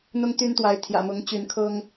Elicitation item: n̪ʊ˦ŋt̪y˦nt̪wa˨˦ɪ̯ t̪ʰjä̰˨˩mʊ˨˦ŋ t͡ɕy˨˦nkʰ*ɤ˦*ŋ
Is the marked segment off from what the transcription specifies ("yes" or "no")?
no